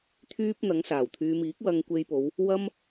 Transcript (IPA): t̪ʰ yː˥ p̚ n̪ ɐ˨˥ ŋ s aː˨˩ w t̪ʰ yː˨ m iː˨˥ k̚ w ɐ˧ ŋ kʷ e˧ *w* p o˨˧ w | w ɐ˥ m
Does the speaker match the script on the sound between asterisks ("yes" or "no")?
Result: no